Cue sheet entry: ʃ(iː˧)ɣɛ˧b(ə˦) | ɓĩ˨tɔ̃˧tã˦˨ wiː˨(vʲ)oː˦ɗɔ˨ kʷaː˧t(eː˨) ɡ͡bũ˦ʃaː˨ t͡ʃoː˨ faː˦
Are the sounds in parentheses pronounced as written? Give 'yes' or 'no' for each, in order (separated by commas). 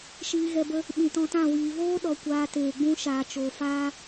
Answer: yes, yes, no, yes